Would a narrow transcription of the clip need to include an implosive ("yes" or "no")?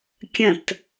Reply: no